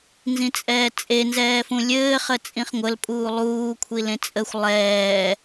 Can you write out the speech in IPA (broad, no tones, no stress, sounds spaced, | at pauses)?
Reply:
n z ĩ t͡sʼ ɛː t͡sʼ e n z ɛː f ũ lʲ ɘː χ ə t͡sʼ ĩ χ ŋʷ ə l pʼ uː lˠ uː kʷʰ i l ẽ t͡sʼ ə xʷ lˠ ɛː